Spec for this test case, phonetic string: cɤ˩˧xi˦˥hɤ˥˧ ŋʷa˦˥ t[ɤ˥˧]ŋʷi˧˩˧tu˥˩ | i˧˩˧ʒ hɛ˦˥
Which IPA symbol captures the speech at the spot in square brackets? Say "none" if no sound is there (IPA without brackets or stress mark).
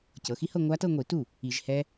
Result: ɤ˥˧